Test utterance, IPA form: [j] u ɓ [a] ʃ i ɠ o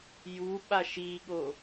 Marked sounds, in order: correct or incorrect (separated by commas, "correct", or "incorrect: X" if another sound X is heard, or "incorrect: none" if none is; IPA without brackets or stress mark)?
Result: correct, correct